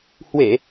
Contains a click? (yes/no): no